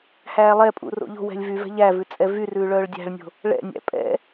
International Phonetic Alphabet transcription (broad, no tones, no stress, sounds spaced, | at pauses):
h æː lˠ ɛ pʼ ṵ r o̰ ʎ o̤ w ɛ̤ lʲ v y v ɛ̤ ʎ æ v ʉ t͡sʼ ɛ v y r ʉː ɭ œː ɭ dʲ æ̤ ɭ nʲ o̤ | ɭ ɛ̰ nʲ æ̰ pʼ ɛ̰